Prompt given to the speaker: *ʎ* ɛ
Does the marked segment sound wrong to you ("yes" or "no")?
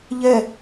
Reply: no